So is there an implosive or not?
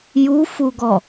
no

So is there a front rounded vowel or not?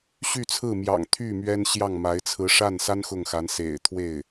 yes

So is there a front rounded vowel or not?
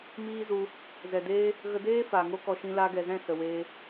no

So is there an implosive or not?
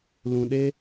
yes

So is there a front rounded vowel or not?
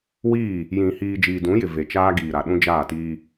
no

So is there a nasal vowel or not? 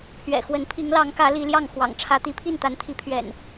no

